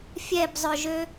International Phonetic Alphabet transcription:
fʲ ɛ b zˤ œ ʒ ø

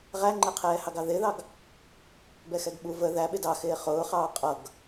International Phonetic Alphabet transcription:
ʁ æ ŋ͡ǃ ɛ qʰ ɛː h ɑ ɡ ɑ ð ɪː ð ɑ ɡ | b ɛ x ɛ ɡ ɓ u v ə ð æ ɓ ɪ d ɑ x ɪː χ ʊː χ ɑː qʼ ʌ ɡ

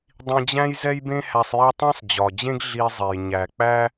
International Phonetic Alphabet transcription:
dˤ ĩ˧ d͡ʑ æ̃˥ j z ɛ˥ j b ẽ˥ h æ˧ sˤ j æ˥ tˤ ɛ̃˥ sˤ d͡ʑ ɒ˩ d͡ʑ ẽ˥ ɡ ɮ i˧ zˤ e˩ j ɲ æ˩ k͡p æ˥

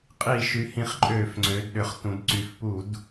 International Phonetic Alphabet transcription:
qʼ i˧˩˧ ʃ y˩˧ h ĩ˧˩˧ χ ǃʼ øː˧˩˧ f ŋ͡ǀ øː˩˧ d ɗ ʏ˩˧ χ t ũ˩˧ d ǀ y˩˧ f p u˧˩˧ d

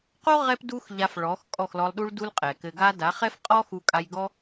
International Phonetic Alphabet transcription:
q o˦ ʁ ɛ˦ p d u˦ x ʎ a˧ f ɭ ɔ˨˦ x kʼ ɔ˦˨ x l ɔ˧ lˠ ɗ u˧ ɭ d u˧ l qʼ ɛ˨ k ɘ˧ ɡ a˧ d a˨˦ χ ɛ˦ f qʼ ɔ˦ x u˧ kʼ a˧ j ɡ ɔ˦

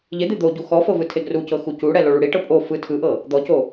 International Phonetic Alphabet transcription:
ʎ e d̪ e d̪ o ɟ u x ɔ f ɤ v ɯ tʰ e ɡ r u c ɤ x u c u ɽ ɛ l o ɭ u ɽ i ʈ ɤ pʼ o f ɯ tʰ ɯ ʔ ɤ | d̪ ɔ c o

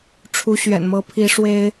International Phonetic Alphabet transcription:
ʈ͡ʂʰ u˧˥ ɕ ɥ ɛ̰˨˩ n m ɤ˧˥ pʰ i˧˥ ʂ w e˥ ɪ̯

